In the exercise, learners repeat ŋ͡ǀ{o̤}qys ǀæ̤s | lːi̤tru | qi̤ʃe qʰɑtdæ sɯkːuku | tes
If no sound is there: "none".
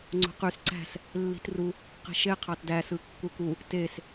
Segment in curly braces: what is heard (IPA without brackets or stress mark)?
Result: o̤